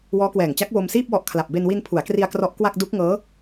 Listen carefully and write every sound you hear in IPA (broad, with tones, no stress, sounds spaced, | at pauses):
w ɔː˦˥ k w ɛː˨˩ ŋ t͡ɕ a˦˥ k̚ w o˧ m s iː˥˩ p̚ w ɔ˦˥ ʔ kʰ l a˨˩ p̚ b e˧ n w i˧ n pʰ u˩˦ a̯ k r i˧ a̯ k r ɔ˦˥ ʔ k w a˥˩ k̚ d u˦˥ k̚ ŋ ɤː˦˥